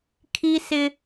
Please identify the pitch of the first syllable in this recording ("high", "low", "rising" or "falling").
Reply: high